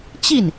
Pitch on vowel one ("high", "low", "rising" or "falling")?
falling